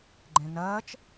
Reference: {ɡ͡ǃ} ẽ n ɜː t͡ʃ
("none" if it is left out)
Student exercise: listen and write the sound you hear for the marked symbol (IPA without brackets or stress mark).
ɡ͡ǃ